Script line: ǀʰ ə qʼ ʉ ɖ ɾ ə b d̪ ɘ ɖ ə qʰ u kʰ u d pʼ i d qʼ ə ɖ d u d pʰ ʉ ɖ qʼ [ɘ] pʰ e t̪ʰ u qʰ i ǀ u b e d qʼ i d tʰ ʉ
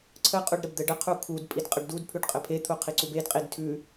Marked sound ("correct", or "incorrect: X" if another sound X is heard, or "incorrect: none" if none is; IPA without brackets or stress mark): correct